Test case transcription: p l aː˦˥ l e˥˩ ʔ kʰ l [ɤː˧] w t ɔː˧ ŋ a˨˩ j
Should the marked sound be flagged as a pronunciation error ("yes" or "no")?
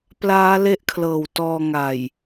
yes